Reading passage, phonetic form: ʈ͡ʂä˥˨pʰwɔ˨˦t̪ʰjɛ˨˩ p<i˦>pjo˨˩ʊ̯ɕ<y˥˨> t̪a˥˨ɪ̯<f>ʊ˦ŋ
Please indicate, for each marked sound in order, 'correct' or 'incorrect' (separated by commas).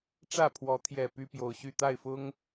incorrect, correct, correct